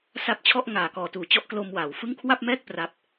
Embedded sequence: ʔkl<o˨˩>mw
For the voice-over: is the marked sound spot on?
no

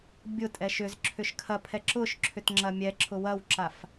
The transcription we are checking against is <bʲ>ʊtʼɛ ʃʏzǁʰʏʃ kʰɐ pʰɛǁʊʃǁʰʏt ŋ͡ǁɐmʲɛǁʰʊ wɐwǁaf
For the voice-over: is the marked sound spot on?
yes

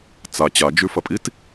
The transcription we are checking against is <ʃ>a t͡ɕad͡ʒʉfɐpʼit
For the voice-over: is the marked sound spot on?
no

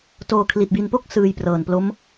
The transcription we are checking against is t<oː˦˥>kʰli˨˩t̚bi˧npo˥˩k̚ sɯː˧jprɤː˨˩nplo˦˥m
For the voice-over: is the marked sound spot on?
no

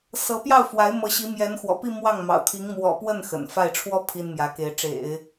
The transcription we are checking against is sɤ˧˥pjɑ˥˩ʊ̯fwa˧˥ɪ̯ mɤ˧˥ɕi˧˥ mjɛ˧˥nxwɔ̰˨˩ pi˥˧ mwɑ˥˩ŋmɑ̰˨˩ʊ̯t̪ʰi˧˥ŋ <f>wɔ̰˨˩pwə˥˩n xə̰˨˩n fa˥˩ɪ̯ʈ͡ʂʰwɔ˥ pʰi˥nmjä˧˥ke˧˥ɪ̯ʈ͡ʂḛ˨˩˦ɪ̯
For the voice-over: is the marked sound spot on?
no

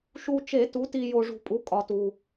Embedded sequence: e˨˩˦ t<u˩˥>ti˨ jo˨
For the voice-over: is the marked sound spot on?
yes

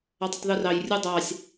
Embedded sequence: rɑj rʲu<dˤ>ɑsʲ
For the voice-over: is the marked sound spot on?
yes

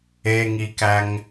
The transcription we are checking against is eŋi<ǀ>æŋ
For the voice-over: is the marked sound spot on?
no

